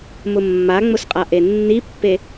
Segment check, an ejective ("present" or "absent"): present